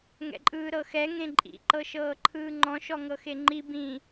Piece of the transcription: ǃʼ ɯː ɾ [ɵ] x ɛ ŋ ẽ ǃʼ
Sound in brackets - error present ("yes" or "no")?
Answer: yes